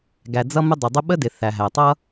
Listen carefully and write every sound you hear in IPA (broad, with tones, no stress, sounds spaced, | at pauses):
ɡ æ˩ d͡z ʌ˥ m ə˥ dˤ ɪ˩ dˤ ə˥ ɓ ə˥ d ɪ˩ θ æ˩ ɦ æ˩ tˤ ʌ˥